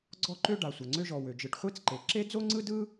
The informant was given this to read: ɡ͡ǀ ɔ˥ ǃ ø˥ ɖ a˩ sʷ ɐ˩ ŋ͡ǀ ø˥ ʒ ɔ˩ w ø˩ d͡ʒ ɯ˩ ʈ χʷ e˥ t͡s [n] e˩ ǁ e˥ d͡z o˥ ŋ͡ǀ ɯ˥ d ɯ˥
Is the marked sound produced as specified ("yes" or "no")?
no